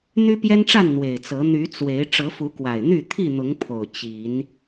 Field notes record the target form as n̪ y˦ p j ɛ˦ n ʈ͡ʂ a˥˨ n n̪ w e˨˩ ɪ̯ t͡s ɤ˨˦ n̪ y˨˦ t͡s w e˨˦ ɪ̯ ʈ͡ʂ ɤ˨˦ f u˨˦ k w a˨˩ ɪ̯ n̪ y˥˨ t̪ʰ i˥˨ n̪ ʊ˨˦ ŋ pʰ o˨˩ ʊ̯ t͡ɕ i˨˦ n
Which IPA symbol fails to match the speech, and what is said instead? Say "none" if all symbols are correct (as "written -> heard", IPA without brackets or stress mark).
none